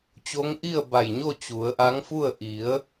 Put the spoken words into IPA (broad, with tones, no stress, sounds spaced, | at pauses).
t͡ɕ o˧˥ ŋ ʔ i˥˨ ə̯ b a˧˩ j ɲ o˥˨ t͡ɕ u˩˧ ə̯ ʔ a˧˥ ŋ f u˥˨ ə̯ ʔ i˩˧ ə̯